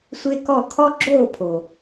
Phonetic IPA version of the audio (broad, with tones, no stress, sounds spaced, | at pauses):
sʷ e˦ k ɔ˦˨ kʰ ɔ˦ ɡ͡ǁ oː˦˨ pʰ o˨